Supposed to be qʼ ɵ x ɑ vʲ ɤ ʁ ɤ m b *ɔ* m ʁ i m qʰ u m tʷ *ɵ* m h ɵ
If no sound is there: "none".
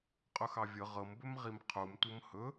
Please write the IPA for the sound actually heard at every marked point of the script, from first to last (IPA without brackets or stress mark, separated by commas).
ɵ, ɤ